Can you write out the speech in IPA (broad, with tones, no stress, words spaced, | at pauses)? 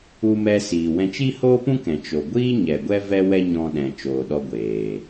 u˧ mɛ˧siː˨wɛ̃˧ t͡ʃi˦hoː˦pũ˦kɛ̃˨ t͡ʃo˨ɡʷiː˦ ɲɛ˨ɡʷɛ˦ vɛ˦wɛ˦ ɲɔ̃˧ɗɛ̃˨ t͡ʃoː˨ɗɔ˧ ɡʷeː˨